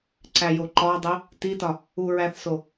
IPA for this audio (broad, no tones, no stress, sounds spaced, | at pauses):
ǀ æ j o ǃ ɒ dˤ u | t i t ɒ | u ɹ æ θ s o